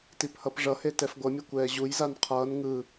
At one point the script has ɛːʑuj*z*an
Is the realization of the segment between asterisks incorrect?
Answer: no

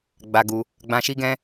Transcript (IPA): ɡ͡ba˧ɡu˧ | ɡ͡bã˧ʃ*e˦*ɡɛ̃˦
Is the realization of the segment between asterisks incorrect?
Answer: yes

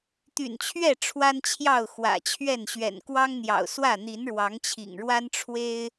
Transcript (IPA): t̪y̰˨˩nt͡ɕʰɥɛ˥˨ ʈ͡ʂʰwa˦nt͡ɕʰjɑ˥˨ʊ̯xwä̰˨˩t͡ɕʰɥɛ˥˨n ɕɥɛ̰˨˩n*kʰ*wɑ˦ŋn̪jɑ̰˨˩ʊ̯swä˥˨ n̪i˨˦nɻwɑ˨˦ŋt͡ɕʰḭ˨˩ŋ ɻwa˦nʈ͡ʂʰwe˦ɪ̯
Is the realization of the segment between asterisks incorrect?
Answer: yes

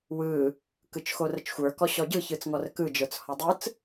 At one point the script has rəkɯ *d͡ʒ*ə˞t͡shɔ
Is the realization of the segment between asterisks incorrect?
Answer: no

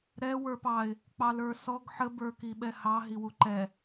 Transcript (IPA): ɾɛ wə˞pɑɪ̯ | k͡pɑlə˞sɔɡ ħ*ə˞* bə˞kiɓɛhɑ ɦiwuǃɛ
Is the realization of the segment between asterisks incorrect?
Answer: yes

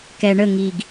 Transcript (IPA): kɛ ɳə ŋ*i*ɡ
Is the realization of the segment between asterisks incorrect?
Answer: no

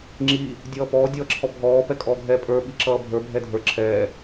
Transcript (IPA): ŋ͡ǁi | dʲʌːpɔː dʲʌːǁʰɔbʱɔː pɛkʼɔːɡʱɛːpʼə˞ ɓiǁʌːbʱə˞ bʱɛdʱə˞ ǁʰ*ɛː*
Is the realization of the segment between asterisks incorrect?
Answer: no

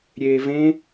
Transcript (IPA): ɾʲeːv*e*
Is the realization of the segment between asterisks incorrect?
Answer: yes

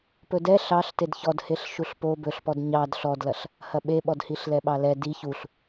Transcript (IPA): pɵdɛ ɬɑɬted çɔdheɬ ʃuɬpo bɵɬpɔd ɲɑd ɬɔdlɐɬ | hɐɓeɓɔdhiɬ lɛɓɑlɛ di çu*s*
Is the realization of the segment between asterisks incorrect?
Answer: yes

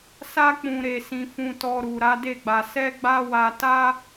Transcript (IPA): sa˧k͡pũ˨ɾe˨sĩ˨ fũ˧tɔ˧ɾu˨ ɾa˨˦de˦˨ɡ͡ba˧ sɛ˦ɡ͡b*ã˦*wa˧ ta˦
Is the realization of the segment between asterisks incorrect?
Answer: yes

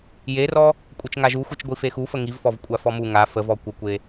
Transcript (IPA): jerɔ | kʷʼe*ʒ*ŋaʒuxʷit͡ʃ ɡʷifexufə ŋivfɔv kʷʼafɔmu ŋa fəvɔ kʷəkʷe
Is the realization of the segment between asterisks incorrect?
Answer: yes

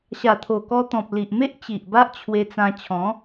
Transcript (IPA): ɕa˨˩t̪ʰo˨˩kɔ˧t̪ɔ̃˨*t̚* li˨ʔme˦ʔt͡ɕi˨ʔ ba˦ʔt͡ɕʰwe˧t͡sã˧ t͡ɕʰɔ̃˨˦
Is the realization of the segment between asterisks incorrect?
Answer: yes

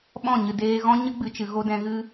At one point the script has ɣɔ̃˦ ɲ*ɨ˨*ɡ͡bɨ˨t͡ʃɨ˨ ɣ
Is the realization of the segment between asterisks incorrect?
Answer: yes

